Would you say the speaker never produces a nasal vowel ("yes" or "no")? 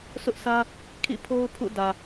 yes